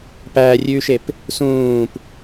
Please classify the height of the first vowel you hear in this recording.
low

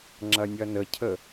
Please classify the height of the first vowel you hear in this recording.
low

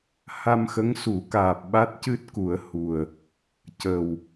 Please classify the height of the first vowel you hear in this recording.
low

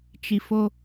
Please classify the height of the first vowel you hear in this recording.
high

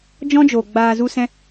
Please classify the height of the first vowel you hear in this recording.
mid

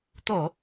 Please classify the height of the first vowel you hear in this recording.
mid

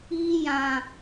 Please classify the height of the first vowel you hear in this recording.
high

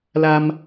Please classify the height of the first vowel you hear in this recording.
low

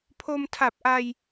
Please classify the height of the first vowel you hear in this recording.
mid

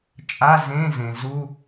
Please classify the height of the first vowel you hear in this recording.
low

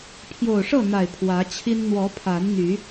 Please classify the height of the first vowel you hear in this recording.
mid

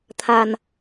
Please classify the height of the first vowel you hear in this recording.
low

